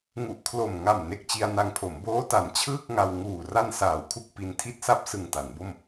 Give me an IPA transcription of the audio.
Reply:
ŋ u˨˩ ʔ kʰ l o˨˩ m ŋ a˨˩ m n e˨˩ k̚ t͡ɕ i˧ a̯ n a˧ ŋ pʰ o˩˦ m b oː˦˥ t a˩˦ n t͡ɕʰ ɯː˥˩ k̚ ŋ a˧ w ŋ uː˨˩ r a˧ n s aː˩˦ w kʰ u˨˩ k̚ p i˧ n tʰ i˥˩ t̚ s a˥˩ p̚ s ɯ˨˩ ŋ t a˩˦ n b o˥˩ m

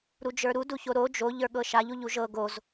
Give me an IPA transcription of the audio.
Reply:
ɾ u d͡ʒ ə˞ ɾ u d u ç o ɾ o d͡ʒ o ʎ ə˞ ɠ ɤ ʃ a ʎ u ʎ u ʒ ɤ ɡ o z

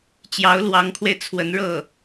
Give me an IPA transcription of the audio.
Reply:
t͡ɕ j ɑ˧˥ ʊ̯ l w ɑ˧˥ ŋ kʰ w e˧ ɪ̯ t͡sʰ w ə˧˥ n ɻ ɤ˥˩

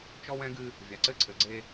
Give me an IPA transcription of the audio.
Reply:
t͡ʃ ɔ˦ w ɛ̃˦ ɡ ɨ˦ | vʲ a˨ ǀ ɘ˦ ǀʰ ɘ˨ ɡ͡ǀ e˦

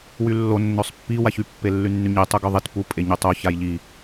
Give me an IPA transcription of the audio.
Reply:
w y lː o nː ø sˤ pː i w a ç y pː e lː y nː y ɲ i tˤ u ɡ ø ðˤ i t p u pʼ e ɲ y tˤ o ç a j ʎ i

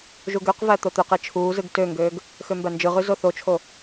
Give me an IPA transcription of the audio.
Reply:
ʒ u ɡ ø q v æ t̪ o t̪ ø q e t͡ʃʰ uː z ɯ ɡ t ø ŋ ɡ øː ɡ | x ø m b æ n d͡ʒ ɯ ʁ y z o θ o t͡ʃʰ o

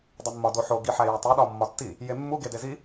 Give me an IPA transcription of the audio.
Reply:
dˤ i mː ɒ d o ħ o ɡ i ħ æ j æ tˤ i ɗ ɒ mː ɒ tː i | j e mː u ɡ e d e z i

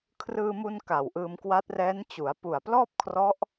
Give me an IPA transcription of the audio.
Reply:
kʰ r ɯː˧ m u˧ n k a˨˩ w ʔ ɯː˧ m k w a˦˥ t̚ r ɛː˦˥ n t͡ɕ u˩˦ a̯ p u˨˩ a̯ p l ɔː˥˩ p̚ kʰ r ɔ˦˥ ʔ

